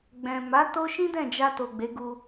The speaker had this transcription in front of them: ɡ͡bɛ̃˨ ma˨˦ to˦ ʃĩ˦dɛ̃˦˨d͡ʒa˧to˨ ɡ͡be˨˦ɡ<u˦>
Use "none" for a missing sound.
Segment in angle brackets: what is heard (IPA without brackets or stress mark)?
u˧